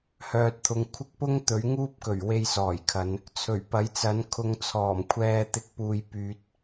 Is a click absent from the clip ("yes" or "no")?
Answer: yes